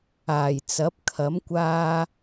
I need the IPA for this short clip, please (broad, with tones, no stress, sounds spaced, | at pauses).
aː˨˩ j t͡s ɐ˨˥ p̚ kʰ ɐ˨˥ m kʷ aː˧